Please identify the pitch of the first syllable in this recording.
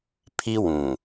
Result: high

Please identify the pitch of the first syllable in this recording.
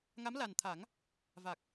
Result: rising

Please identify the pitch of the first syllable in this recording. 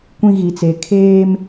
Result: high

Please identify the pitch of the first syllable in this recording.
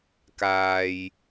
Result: low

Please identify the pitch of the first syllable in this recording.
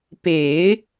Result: low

